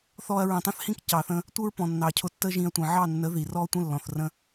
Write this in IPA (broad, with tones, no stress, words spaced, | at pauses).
θɔ˧ɐ̯ɹə̃˨tˤə̃˦θhĩ˦k cɑ˨θə̃˧ | tʷə˦ɹpɔ̃˨nːɑ˨cʰʊ˧ tːə˦ʒĩ˧ɐ̯tʷə̃˨ ʕɑ˦˨nːə˨˦ ði˨rɔ˦tʷə̃˦ lːɔ̃˨θrə̃˦